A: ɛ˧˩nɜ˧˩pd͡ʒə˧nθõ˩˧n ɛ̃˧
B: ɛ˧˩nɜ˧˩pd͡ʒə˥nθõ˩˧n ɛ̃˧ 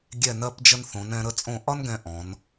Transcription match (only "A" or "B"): A